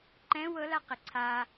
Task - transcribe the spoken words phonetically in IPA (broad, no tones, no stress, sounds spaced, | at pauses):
ǃ ɛ̃ w ɤ l a q ɪ ǀʰ a